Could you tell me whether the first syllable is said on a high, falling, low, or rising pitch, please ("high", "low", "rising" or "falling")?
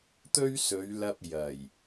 high